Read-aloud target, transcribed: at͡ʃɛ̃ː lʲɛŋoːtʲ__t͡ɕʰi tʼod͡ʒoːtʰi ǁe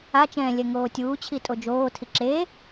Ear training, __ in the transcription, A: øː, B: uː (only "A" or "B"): B